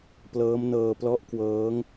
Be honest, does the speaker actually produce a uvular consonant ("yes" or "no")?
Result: no